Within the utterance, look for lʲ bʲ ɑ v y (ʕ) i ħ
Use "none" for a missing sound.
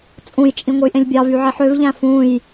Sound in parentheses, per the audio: ʕ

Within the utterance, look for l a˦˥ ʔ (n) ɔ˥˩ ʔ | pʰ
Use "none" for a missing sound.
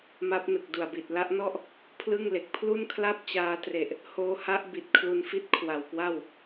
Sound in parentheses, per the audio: n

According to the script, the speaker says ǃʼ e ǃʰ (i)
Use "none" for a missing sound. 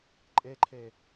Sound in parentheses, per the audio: e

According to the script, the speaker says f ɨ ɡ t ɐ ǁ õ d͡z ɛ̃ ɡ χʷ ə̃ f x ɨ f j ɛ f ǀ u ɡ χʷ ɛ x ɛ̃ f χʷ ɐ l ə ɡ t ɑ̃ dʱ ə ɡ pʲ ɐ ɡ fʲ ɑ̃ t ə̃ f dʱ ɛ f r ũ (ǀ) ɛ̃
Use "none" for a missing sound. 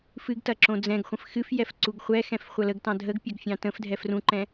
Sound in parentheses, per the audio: ǃ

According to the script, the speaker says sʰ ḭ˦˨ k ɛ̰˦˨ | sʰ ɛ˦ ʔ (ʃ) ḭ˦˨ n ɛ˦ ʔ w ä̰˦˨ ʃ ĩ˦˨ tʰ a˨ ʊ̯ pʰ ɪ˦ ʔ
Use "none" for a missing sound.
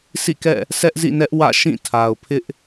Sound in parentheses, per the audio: z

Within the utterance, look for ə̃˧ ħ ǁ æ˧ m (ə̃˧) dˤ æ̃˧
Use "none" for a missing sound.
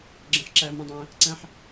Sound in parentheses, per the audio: ə̃˧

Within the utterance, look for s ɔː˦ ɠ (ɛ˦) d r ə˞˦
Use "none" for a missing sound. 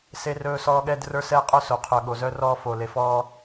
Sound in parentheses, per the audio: ɛ˦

